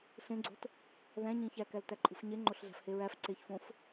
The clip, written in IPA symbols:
ɬ ẽ ɡ͡ǀ o̤ t | ð æ̃ ɲ ĩ ç æ k æ l t æ ǃʼ ṳ f ɲ e ŋ͡ǃ o ɬ ɮ æ̤ f h e ɹ æ f ǀ e ç f õ f

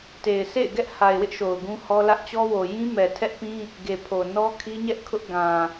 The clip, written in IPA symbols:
t e˨ ɪ̯ s ḛ˦˨ ɪ̯ ɡ ɛ˦ ʔ h a˨ ɪ̯ w ɪ˦ ʔ ʃ o˨ ʊ̯ ɡ ũ˦ h ɔ˦ l ä˦ ʔ t͡ɕ ɔ˦ w o˨ j ĩ˦ m ɛ˨ tʰ ɛ˦ ʔ p ĩ˦ | ɡ e˨ pʰ o˨ n ɔ˦ kʰ i˦ ɲ ɛ˦ ʔ kʰ ʊ˦ ʔ ɡ ã˨

